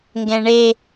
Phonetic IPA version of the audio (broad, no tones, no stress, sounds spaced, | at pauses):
ŋ ɡ ɛ̃ ɳ e